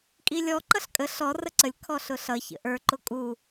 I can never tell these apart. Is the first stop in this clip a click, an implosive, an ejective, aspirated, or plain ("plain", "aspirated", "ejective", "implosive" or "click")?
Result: ejective